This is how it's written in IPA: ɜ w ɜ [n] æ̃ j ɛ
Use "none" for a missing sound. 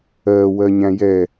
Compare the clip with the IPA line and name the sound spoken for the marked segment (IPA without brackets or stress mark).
ɲ